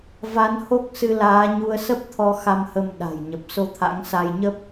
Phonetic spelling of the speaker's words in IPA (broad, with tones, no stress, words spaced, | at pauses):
va˨˦n ho˦˥k̚sɨ˧laː˨˦ɲu˧ə̯ sə˦˥p̚t̪ʰɔ˧ xa˧mhə˧m ɗa̤˨˩jɲə˨˩p̚ so˧t̪ʰa̰˧˥ŋ sa˧jɲə˦˥p̚